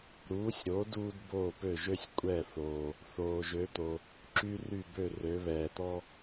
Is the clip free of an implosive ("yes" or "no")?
yes